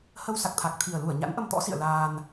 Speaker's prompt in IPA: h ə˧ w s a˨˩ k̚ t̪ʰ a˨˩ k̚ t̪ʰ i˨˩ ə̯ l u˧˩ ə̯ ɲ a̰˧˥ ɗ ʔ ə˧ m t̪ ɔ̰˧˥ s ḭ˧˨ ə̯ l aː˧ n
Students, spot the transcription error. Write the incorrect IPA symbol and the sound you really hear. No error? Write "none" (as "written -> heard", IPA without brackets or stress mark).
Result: ɗ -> n